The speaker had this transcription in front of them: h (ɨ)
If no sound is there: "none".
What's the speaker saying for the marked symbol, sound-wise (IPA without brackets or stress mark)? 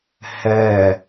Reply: ɛ